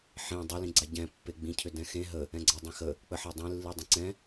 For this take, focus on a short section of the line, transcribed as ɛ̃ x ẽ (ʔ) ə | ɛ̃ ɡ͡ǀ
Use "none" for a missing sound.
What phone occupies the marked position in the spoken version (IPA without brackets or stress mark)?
ɦ